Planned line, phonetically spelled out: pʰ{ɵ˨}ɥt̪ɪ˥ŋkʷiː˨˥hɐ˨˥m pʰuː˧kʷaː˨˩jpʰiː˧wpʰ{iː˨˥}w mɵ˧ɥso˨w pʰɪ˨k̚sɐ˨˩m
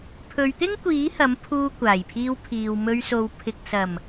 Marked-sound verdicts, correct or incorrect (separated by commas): incorrect, incorrect